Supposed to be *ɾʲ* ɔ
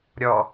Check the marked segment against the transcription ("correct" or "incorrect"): correct